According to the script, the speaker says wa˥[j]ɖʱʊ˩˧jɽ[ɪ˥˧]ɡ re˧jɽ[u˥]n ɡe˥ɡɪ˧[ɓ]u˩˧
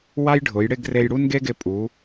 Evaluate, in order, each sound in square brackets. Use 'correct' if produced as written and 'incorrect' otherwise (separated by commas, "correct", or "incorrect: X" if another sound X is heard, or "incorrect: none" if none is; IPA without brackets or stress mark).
correct, correct, correct, incorrect: pʼ